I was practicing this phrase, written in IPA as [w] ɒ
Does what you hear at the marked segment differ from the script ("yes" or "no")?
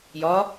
yes